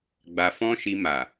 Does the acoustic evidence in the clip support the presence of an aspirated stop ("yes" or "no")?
no